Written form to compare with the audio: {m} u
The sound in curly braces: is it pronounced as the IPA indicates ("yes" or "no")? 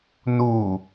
no